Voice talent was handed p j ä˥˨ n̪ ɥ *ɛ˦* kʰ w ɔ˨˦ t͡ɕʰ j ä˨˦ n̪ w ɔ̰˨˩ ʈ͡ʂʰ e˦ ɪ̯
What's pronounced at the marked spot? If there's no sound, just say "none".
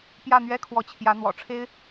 ɛ˦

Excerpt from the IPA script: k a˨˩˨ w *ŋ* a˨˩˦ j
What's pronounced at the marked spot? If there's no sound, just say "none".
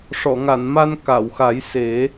x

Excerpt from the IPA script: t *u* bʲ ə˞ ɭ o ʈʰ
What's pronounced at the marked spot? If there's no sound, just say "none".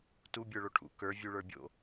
u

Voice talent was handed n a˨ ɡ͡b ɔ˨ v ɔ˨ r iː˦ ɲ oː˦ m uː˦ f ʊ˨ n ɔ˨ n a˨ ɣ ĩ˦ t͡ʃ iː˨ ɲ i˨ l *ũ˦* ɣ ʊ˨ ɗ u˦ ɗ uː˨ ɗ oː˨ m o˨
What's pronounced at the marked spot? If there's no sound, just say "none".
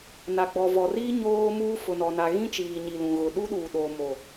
ũ˨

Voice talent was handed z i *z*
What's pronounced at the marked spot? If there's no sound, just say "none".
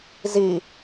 none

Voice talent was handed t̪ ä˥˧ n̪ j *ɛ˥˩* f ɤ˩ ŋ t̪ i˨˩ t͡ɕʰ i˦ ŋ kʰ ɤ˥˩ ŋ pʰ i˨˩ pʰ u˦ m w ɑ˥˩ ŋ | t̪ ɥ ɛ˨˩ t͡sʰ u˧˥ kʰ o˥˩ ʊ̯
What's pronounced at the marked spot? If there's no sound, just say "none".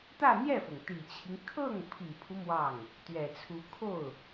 ɛ˥˩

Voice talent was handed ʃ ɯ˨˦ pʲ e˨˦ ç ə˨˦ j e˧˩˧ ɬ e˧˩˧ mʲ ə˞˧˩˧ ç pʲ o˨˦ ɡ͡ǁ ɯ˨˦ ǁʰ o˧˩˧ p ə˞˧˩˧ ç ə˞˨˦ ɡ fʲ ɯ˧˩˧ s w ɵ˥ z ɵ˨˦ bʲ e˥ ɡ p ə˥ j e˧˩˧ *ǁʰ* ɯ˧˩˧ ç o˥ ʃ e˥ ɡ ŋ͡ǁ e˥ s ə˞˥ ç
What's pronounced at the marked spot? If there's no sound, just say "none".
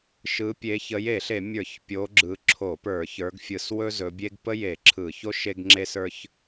ǁʰ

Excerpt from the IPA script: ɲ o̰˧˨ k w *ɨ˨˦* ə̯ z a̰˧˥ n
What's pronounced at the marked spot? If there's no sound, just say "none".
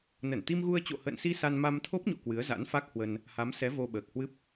ɨ˨˦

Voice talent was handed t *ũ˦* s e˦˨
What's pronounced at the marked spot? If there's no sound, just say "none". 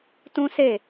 ũ˦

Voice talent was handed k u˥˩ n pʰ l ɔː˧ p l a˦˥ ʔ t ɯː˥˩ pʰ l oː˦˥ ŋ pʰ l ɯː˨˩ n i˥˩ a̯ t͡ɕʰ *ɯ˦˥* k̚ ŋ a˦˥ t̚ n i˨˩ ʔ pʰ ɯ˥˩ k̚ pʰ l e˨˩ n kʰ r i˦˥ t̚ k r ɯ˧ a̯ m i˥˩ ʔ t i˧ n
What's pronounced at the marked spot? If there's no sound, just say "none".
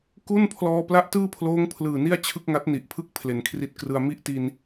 ɯ˥˩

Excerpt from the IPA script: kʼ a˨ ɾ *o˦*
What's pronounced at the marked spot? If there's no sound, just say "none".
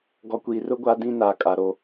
o˦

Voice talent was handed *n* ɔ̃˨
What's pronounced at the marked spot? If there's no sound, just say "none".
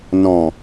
n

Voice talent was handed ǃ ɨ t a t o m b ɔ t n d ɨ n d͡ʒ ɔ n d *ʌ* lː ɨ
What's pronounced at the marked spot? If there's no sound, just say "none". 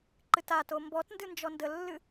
ə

